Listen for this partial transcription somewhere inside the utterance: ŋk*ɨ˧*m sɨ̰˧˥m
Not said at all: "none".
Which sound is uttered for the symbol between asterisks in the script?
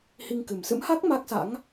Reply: ɨ˨˩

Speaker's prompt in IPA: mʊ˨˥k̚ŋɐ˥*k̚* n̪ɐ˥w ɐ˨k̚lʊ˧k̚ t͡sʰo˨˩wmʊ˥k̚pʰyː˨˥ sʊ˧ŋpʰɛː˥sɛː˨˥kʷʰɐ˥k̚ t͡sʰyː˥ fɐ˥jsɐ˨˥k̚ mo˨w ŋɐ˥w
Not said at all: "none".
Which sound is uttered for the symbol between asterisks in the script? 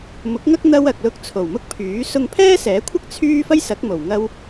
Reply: k̚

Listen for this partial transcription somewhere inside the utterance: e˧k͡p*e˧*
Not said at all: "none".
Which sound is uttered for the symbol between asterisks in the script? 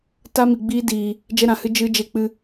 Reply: ɨ˧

